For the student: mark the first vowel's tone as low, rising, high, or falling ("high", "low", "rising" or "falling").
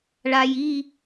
low